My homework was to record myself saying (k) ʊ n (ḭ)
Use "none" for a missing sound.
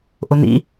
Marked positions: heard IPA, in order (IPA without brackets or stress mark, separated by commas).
ʔ, ḭ